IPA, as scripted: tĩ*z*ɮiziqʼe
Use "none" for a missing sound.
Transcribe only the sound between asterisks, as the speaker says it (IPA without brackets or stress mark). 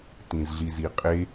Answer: z